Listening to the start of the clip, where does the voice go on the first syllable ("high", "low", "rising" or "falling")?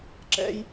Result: high